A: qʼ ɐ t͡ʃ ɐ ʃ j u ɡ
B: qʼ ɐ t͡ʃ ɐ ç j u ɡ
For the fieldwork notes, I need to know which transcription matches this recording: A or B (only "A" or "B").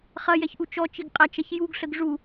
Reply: B